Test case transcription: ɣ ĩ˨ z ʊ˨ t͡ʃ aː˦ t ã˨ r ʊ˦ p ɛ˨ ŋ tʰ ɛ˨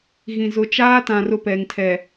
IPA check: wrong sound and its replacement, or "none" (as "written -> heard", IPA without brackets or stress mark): none